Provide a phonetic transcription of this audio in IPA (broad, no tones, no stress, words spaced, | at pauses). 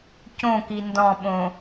cõki ndɔ̃ɓõ